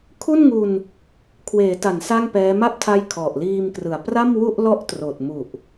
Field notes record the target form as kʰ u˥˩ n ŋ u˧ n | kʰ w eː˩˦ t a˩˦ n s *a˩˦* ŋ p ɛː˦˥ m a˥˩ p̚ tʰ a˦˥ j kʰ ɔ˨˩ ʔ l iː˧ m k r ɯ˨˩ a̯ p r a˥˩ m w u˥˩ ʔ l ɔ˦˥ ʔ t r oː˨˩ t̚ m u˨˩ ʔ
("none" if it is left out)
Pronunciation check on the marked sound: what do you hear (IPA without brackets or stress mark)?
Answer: a˥˩